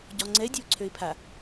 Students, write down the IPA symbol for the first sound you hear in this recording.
ɟ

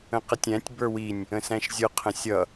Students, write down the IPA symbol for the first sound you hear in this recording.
ə̃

